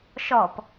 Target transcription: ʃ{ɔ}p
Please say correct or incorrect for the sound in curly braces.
correct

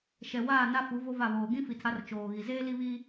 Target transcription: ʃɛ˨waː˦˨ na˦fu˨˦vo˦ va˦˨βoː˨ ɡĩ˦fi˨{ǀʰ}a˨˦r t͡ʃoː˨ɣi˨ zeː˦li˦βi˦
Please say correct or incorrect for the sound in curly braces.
incorrect: tʰ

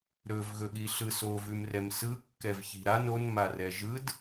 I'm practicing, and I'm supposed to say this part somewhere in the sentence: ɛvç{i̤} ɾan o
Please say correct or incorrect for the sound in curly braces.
correct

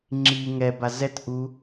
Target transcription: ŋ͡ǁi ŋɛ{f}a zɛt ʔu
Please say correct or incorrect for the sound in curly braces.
incorrect: b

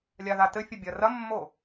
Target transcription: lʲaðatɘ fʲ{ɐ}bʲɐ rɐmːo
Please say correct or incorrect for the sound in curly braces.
correct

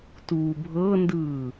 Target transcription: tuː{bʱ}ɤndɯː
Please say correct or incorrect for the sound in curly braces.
correct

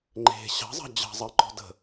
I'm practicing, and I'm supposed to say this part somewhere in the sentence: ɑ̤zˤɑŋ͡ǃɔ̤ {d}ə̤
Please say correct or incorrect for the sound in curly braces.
correct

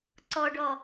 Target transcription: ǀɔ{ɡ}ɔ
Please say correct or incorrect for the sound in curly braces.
incorrect: ɖ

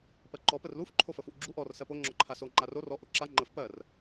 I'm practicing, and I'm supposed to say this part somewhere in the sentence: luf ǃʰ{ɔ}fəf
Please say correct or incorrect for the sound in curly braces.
incorrect: o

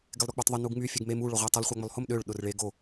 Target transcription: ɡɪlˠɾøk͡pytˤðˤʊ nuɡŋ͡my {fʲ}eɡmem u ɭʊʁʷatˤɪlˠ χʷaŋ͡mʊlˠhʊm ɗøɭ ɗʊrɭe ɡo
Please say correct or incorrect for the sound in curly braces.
correct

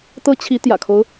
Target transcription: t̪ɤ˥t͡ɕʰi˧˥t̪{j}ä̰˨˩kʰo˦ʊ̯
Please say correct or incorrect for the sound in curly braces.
correct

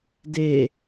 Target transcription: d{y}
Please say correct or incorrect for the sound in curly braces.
incorrect: e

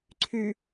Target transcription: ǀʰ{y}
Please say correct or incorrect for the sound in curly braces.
correct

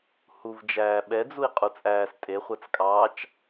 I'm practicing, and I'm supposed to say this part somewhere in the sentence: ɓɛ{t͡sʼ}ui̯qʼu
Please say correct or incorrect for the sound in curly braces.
incorrect: d͡z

